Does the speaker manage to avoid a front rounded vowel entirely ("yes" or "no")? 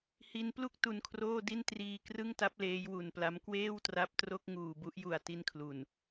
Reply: yes